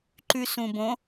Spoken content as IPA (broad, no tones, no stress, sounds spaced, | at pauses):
ǃ ʉ s ũ b õ